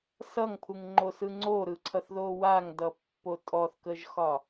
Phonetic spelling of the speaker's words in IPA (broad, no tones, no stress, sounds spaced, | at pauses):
s ʌ ŋ pʰ u ŋ ŋ͡ǃ o s ɯ ŋ͡ǀ o ɾ ɯ ǀʰ ʌ θ ð o w a ŋ d ʌ pː o tʼ ɔ θ k ə ʒ x ɒ